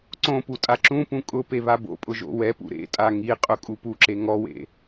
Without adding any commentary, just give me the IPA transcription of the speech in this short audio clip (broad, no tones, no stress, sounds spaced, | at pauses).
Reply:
ǀ õ p u tʼ a ǁ ũ p ũ kʼ ʊ p e β a b o̰ pʼ ʊ ʒ o̰ w ɛ p ṵ ɾ ḛ tʼ a ŋ i qʼ ʊ kʼ u p u ǁ e ŋ ɔ w ḛ